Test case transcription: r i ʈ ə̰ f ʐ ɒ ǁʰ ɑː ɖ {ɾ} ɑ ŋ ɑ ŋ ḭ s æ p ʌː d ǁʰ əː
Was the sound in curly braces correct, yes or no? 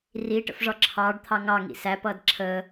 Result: no